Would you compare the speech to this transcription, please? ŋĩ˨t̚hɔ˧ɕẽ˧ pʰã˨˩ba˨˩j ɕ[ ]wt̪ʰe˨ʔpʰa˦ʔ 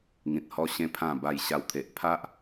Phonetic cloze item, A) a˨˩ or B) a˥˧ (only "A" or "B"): A